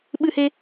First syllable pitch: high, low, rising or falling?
high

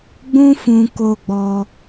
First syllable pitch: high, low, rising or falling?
high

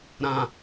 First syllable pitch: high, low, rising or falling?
low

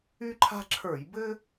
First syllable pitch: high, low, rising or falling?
high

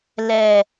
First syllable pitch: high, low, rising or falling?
low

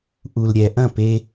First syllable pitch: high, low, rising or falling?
low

